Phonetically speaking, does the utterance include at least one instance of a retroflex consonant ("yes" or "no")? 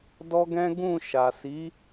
no